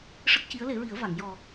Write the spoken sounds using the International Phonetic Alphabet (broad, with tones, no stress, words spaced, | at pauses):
ʂə˦˥k̚ci˧˥ə̯le˨˩˦ɹi˨˩˦ə̯ va˨˩˨ŋjɔ˨˩